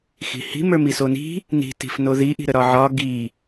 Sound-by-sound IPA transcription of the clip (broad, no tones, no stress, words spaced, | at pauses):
xi̤hi̤ mə˞misoni̤ | ni̤ ti̤fnoði ʔi̤ɾəɾɒʕɒ ɡi